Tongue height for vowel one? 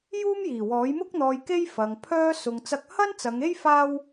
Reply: high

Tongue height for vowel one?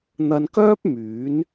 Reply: low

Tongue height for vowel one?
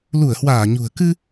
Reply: high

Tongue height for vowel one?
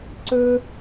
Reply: mid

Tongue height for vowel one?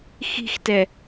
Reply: high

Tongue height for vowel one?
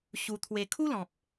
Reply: high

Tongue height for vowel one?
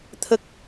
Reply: mid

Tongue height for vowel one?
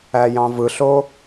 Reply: low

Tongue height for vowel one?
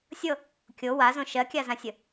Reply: mid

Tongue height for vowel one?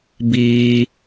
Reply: high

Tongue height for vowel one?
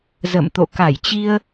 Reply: mid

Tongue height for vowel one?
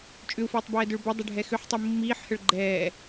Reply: high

